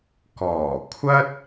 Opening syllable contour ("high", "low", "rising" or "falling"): low